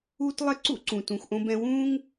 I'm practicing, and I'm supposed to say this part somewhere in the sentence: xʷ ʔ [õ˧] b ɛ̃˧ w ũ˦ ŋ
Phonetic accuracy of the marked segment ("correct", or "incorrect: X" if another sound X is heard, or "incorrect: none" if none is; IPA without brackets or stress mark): correct